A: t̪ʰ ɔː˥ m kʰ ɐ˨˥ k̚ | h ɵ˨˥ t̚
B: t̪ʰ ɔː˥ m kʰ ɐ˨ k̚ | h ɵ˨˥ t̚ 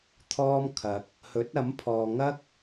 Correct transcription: B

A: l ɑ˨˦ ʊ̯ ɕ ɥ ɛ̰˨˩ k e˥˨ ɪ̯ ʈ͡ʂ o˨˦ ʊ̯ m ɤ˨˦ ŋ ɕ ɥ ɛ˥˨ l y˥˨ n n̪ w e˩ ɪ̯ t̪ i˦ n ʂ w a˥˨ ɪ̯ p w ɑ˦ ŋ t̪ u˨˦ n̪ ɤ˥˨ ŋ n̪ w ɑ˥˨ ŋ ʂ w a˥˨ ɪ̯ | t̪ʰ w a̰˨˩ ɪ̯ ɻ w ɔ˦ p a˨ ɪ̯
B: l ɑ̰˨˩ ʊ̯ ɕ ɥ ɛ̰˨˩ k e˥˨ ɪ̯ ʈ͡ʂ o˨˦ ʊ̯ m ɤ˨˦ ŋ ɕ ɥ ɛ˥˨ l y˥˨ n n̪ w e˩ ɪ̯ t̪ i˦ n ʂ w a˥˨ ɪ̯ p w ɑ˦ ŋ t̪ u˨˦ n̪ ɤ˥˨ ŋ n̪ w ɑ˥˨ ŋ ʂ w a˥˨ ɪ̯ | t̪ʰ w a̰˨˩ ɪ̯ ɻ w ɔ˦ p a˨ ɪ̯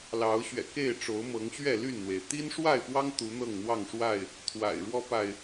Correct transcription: A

